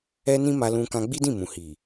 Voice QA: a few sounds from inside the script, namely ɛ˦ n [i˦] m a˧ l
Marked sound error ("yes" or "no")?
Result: yes